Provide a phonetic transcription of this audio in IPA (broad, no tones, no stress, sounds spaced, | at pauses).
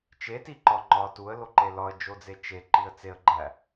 t͡ʃ e t i ǃ ɒ ŋ͡ǃ ɒ t u ə̯ l o ǃ e l ɒ ə̯ d͡ʒ o d͡z e t͡ʃ e ǃ i ə̯ t͡s e ə̯ ɡ͡ǃ æ